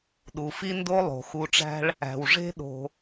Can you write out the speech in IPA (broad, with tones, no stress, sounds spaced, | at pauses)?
ɗ u˩ f i˥ n d o˦ lˠ o̤˩ x u˨ ʈ͡ʂ æ̤˦ ɭ | æ̤˩ w ʐ e̤˥ ɗ o̤˨